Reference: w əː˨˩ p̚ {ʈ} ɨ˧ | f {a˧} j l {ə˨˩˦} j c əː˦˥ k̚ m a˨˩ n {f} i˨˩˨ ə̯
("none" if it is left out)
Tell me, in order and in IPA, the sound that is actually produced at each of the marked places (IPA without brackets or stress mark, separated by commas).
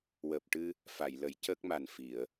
ʈ, a˨˩˨, ə˨˩˦, f